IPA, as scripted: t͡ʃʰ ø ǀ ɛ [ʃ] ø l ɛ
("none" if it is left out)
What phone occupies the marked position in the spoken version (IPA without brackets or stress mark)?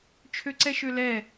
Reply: ʃ